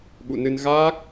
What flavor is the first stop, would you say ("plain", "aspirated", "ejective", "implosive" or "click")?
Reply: implosive